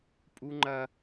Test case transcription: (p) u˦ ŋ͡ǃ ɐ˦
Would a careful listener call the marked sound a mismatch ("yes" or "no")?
yes